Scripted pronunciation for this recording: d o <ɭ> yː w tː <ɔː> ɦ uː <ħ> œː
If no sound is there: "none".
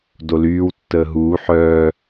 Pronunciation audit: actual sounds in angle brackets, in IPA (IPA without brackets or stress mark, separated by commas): l, əː, ħ